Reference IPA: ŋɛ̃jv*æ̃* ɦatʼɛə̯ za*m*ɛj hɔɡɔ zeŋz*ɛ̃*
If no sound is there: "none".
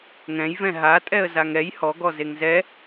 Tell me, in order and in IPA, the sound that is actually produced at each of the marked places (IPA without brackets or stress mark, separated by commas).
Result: ɛ̃, ŋ, ɛ